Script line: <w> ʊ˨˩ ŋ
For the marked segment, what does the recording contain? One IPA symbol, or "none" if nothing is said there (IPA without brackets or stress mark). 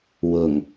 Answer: w